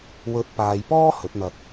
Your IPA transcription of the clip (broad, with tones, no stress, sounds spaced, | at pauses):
w ɵ˨˥ t̚ p aː˨ j p ɔː˥ h ɵ˨˥ t̚ n̪ ɐ˧ t̚